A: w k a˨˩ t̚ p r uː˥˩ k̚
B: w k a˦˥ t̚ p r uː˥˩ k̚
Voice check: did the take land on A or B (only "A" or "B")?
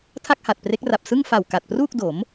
A